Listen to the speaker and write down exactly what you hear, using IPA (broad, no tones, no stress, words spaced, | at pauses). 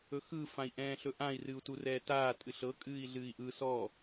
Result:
ɵxɯ fãi̯ʔɛ̃ːɬɵʔãi̯ rɨu̯turɛːtaː tʼɨɬɤ kʼɨːi̯ɮɨːi̯ʔɯ sɔ